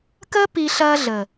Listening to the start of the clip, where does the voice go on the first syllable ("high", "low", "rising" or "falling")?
high